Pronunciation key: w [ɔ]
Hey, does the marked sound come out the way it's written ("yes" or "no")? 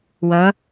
no